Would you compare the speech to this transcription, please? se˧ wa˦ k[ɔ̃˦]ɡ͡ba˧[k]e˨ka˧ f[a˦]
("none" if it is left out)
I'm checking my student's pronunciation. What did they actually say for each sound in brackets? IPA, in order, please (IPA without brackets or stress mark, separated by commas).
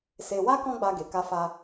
ɔ̃˦, ɡ, a˧